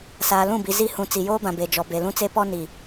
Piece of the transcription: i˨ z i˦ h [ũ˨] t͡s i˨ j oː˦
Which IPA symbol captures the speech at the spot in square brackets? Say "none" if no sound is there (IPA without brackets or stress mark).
ũ˨